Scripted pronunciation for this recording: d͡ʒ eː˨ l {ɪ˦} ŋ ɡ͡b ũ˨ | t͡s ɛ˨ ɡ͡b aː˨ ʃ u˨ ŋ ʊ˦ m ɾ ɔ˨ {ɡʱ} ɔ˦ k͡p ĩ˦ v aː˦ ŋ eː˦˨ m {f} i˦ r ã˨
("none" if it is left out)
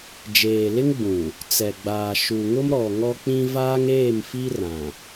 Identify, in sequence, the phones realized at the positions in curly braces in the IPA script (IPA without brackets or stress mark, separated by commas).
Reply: ɪ˦, ŋ, f